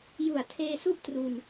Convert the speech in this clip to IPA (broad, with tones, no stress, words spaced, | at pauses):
ju˨˩a̯tʰeː˧su˥˩ʔtru˧n